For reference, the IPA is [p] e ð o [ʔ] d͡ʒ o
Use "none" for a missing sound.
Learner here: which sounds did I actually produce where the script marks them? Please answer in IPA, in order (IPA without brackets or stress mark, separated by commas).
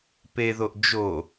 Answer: p, ʔ